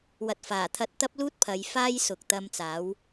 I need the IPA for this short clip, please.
w ɐ˨ t̚ f aː˨˩ t̪ʰ ɐ˧ t̚ t̪ ɐ˥ p̚ l uː˥ t̚ pʰ ɐ˨˧ j f aː˥ j s ʊ˨ k̚ t̪ ɐ˧ m t͡s aː˨˥ w

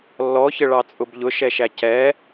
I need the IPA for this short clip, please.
lː ɔ ç ə ɭ ɑ t͡sʼ ʊ b ʎ ʊ ʃ ɛ ʃ æ c ɛ

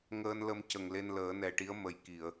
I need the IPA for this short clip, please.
ŋ əː˧ n l ə˧ m c ə˨˩ ŋ l e˧ n l əː˨˩˦ n ɛ˨˩ ʈ i˧˥ ə̯ m ə˨˩ j k i˨˩˨ ə̯

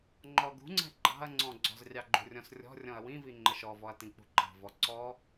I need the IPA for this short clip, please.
ŋ͡ǃ ɔ ɡ ṳ ŋ͡ǀ ɛ̤ ɡ͡ǃ ɑ̤ ɐ̯ ŋ͡ǀ ɔ̃ ɡ͡ǀ ɔ̤ z rʲ ɑ ɡ͡ǃ ṳ rʲ ɔ̃ s rʲ ɔ̤ rʲ ɔ̃ ɐ̯ w ĩ v i ŋ͡ǃ ə ʃ ɔ v ɔ ɐ̯ t ĩ k͡p ṳ ǃ ɑ̤ v ɔ ǀ ɔ

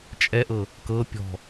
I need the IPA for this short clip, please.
t͡ʃʼ ɛ ʔ ɤ | k ɤ pʲ ɔ̤

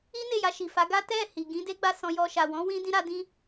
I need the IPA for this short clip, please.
i˦ n e˦˨ j a˧ ʃ i˨ f a˨˦ ɡ a˦ t ɛ˦˨ h i˨ ɡ ĩ˨˦ d e˦ ɡ͡b a˦˨ s ɔ̃˧ j ɔ˧ ʃ a˨ w ɔ̃˨˦ w ĩ˦ d ĩ˦ ɾ a˦ d ĩ˦

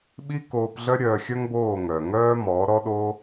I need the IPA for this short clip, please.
ɓ i˦ k oː˧ p ɮ œ˦ ɾʲ œ˧ xʲ œ˦ ŋ b oː˦˨ ŋ œ˨ ŋ œː˦ m ɔ˨˦ ɾ ɔ˦ ɗ oː˦

